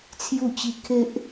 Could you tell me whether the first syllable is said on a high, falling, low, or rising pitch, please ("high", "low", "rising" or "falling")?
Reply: falling